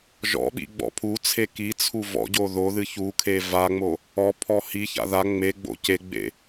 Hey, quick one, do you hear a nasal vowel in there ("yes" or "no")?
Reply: no